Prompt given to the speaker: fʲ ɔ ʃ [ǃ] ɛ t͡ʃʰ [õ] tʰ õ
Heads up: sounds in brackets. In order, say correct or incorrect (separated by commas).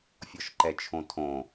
correct, correct